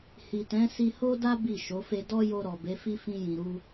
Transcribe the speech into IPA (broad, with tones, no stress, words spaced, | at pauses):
hi˨tɛ̃˨˦ si˧ho˦da˦ bi˦˨ʃo˨˦fe˦ dɔ˦jo˧ɾɔ˨ be˨˦fi˦ fĩ˧jĩ˨ɾu˧